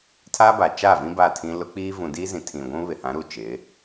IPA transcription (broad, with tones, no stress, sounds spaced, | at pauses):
tʰ a˦ b a˨ t͡ʃ a˦˨ v ĩ˦ b a˦˨ tʰ ĩ˦ l ʊ˦ k͡p iː˦ v ũ˨ d iː˦ z ĩ˨ tʰ ĩ˨ ɡʷ ũ˦ β ɪ˨ h ã˨˦ ɾ uː˨ t͡ʃ ɪ˨˦